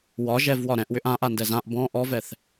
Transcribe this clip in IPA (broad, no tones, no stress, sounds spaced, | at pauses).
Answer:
w ɒ ʒ ɛ v w ɒ ɾ ɛ̃ ʔ w ʏ ʔ ã ʔ a n d ɛ z ã ʔ b ɔ̃ ʔ ɔ v ɛ θ